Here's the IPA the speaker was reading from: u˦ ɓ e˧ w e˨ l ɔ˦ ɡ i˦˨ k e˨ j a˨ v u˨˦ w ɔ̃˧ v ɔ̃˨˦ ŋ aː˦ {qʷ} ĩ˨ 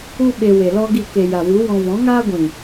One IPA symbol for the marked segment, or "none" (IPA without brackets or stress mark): ɡʷ